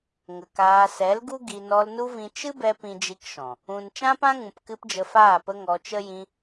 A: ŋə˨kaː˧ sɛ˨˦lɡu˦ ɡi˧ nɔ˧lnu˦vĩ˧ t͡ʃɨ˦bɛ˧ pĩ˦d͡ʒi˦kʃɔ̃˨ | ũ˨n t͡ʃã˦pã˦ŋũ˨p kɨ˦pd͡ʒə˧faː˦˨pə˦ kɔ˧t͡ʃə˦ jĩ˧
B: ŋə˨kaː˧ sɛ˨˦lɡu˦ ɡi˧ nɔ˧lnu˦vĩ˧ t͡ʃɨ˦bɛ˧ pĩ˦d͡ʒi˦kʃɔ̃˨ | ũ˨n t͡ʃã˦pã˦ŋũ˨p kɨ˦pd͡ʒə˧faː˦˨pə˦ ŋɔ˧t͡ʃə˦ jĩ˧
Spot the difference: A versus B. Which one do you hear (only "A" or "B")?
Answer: B